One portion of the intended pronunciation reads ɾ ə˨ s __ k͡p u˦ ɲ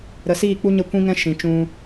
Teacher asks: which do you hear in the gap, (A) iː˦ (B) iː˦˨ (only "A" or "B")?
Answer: B